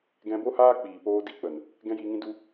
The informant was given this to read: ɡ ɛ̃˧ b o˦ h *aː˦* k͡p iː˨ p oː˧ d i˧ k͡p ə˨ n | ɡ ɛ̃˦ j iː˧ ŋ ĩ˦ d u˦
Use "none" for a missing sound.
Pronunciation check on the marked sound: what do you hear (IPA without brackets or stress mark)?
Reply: aː˦